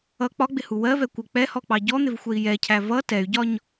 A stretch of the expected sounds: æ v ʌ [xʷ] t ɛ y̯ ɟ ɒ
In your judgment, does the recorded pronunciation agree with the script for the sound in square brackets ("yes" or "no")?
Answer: no